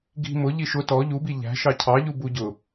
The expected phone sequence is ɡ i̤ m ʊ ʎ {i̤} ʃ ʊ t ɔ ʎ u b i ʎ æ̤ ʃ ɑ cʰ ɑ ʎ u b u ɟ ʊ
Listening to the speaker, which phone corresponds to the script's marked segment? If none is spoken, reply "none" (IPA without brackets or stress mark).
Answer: i